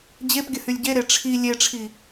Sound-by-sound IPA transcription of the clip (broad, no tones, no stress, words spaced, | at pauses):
d͡ʑepɡʲə hylʲɟeɾe ʈ͡ʂʰi lʲeʈ͡ʂʰi